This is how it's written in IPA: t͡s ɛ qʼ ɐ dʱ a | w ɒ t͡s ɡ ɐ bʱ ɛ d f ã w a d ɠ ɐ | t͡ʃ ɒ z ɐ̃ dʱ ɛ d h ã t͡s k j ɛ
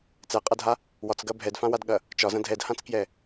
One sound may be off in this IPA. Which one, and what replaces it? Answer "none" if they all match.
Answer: none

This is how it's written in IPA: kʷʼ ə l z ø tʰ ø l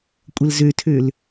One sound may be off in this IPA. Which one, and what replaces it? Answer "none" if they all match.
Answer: none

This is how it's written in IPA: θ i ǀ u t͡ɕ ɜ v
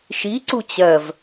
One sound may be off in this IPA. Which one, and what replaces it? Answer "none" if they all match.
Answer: θ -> ʃ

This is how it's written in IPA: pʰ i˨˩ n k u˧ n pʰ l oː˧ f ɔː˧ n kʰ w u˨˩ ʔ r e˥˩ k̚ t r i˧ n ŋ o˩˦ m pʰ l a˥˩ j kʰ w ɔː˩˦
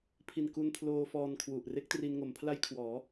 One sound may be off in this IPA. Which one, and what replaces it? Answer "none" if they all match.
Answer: none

